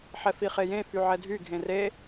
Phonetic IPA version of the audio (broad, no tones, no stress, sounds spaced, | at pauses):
ħ ɛ f i χ e j ẽ f y ʕ ɛ dʱ y ɡʱ ẽ r e